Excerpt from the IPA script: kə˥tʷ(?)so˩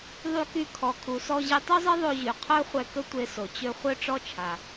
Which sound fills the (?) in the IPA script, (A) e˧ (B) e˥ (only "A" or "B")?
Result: A